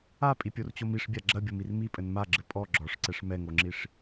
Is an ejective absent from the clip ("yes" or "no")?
no